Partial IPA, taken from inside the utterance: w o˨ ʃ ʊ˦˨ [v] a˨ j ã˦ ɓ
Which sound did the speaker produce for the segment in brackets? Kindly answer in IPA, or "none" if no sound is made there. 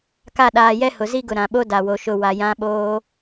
w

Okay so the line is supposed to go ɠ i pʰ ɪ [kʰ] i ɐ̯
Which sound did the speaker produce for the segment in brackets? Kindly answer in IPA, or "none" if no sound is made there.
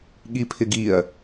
ɡ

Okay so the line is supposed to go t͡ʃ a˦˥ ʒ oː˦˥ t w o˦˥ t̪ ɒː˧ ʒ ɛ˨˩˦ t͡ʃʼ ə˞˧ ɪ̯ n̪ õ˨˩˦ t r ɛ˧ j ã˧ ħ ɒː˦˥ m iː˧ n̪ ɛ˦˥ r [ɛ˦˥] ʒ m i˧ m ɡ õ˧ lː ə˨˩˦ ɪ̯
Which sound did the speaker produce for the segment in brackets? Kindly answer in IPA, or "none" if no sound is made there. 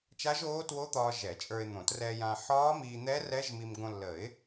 ɛ˦˥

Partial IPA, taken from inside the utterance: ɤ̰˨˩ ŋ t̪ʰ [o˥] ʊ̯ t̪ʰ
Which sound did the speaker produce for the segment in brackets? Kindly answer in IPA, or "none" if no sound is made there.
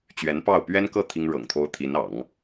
o˥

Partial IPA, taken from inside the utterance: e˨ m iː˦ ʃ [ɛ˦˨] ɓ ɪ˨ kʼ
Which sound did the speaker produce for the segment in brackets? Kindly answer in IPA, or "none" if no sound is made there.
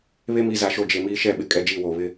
ɛ˦˨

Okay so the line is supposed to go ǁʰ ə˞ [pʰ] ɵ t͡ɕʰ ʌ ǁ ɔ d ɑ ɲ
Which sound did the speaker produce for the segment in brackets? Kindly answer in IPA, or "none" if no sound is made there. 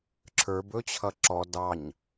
b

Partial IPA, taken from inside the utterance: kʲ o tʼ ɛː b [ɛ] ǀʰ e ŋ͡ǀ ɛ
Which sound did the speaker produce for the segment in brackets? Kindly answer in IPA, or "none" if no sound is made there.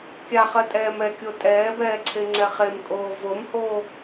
ɛː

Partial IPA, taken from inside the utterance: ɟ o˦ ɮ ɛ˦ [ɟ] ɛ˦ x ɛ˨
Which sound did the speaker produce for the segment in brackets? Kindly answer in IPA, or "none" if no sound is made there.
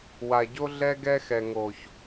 ɡ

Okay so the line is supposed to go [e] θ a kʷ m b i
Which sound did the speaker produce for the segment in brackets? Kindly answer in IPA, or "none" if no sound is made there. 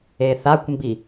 e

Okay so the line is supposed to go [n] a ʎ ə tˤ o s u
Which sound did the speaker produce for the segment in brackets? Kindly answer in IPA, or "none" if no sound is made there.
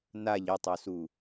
n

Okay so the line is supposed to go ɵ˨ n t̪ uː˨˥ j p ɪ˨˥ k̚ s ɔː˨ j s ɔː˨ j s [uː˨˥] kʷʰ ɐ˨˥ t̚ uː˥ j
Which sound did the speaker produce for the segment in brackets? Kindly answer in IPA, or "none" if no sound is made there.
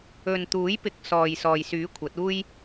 yː˨˥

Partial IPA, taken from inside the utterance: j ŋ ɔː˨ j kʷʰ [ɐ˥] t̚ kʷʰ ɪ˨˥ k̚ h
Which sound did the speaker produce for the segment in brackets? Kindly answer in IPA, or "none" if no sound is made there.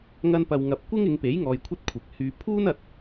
ɐ˥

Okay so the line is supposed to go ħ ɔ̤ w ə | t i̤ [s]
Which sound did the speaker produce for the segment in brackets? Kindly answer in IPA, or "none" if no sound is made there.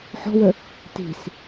s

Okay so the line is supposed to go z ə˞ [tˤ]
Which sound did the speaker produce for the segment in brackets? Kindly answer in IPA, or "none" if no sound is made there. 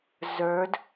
d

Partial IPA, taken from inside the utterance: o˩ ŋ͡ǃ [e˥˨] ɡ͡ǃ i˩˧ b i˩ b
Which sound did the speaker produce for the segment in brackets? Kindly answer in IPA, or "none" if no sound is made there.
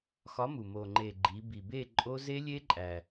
e˩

